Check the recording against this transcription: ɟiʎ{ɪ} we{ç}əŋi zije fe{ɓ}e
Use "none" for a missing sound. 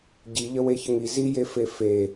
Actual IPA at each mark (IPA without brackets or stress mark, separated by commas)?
ə, ç, f